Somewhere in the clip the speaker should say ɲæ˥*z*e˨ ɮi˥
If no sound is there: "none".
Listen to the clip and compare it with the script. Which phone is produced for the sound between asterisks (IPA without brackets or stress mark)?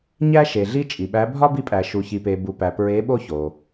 ʃ